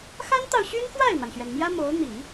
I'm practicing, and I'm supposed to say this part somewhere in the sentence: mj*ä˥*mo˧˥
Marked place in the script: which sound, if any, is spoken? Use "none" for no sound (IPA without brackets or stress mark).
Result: ä˥